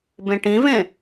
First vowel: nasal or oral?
nasal